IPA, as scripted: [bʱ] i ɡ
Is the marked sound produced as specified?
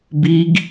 no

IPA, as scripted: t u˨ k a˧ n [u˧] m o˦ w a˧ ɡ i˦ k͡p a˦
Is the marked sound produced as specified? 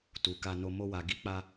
no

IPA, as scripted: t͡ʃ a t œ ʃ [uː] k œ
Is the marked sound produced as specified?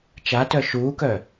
yes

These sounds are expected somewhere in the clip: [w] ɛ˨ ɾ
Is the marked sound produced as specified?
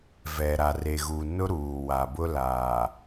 no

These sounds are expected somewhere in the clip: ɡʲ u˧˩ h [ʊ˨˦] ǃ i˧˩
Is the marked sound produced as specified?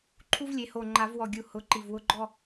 yes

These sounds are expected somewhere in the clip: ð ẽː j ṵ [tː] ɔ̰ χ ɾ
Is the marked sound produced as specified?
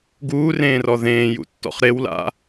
yes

